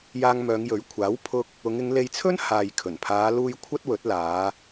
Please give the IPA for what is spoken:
j aː˧ ŋ m œː˨˧ ŋ j ɵ˨˥ ɥ kʷʰ aː˨˥ w pʰ ʊ˧ k̚ | ʊ˨˧ ŋ ɪ˨˧ ŋ l e˧ j t͡sʰ ɵ˥ n h aː˨ j kʰ ɵ˨˩ n pʰ aː˨˧ l uː˧ j kʷʰ ɐ˥ t̚ w ɵ˨˥ t̚ l aː˨˧

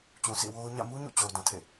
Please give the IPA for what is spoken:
t͡ɕ ũ˨ s ḭ˦˨ w o˦ ʊ̯ ɲ ä̰˦˨ m u˦ ɲ ṵ˦˨ t͡ɕ o˨ ʊ̯ d ã˨ tʰ ḛ˦˨

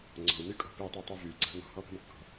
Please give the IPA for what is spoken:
ŋ͡ǀ ɔ̤ u̯ n y kʼ ɔ̤ p i tˤ i tˤ y v y ɡ͡ǀ a̤ n ɔ̤ h ɔ p ə̤ m kː ɔ̤

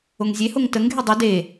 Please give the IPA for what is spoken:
o ŋ zʲ e h o ŋ t ə ŋ ɡʱ e dˤ ɵ d e

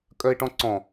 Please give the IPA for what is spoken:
kʼ œ ɪ̯ ʈ ɔ̃ ǀ ɔ̃

